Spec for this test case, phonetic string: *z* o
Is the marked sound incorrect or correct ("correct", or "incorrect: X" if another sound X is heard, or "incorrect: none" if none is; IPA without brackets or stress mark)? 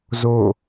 correct